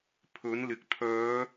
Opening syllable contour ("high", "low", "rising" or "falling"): rising